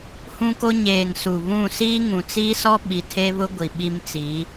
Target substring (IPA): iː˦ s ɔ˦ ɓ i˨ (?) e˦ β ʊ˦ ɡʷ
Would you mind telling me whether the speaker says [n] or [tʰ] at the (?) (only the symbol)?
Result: tʰ